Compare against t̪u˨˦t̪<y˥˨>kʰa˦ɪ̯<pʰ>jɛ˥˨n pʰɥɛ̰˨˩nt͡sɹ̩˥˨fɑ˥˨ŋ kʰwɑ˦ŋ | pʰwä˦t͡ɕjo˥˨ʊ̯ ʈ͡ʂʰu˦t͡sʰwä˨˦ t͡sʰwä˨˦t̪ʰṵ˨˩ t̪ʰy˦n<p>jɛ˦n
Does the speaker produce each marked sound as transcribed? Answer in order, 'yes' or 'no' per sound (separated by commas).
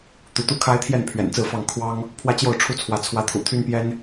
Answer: no, no, yes